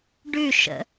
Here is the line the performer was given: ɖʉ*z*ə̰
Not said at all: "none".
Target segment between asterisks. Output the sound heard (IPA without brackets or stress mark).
ʃ